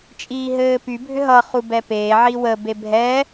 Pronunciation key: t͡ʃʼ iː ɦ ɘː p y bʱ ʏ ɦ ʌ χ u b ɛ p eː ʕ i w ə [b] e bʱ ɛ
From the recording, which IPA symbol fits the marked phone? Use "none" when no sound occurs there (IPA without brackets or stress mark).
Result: b